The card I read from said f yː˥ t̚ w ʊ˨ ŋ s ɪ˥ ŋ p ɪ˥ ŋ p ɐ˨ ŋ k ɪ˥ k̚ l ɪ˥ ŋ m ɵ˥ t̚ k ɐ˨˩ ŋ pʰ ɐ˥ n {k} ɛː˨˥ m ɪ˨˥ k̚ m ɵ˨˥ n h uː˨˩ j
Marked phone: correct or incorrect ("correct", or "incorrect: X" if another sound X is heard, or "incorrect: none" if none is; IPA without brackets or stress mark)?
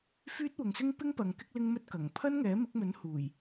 incorrect: ŋ